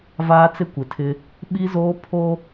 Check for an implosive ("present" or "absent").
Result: present